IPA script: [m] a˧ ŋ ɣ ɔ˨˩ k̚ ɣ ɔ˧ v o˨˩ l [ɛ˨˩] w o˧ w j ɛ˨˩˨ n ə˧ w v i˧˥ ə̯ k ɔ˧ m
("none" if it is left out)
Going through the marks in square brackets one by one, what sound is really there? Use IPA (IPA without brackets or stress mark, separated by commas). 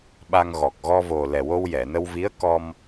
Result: ɓ, ɛ˨˩